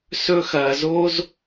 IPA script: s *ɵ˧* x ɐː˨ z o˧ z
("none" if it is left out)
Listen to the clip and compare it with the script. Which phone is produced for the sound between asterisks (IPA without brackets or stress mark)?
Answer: ɵ˧